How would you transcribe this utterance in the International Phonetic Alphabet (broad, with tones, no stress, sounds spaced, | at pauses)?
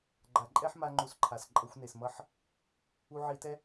ɡ͡ǃ a˨ ǃʼ ɛ˦ ħ m a˦ ŋ͡ǃ u˧ s ǃʰ a˨ s ǃʼ ʌ˧ xʷ n e˨ s m ʌ˦˨ ħ | u˧ ʕ i˧ t ɛ˦